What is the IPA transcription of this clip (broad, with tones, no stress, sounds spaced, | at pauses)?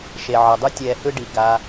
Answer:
ʃ e˨ ʕ ʌ˨ dˤ u˦ tʲ ɛː˧ h ɯ˦ ɖ i˨ ɡ a˧